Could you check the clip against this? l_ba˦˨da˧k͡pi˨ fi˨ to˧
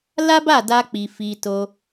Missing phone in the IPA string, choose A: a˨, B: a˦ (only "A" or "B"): B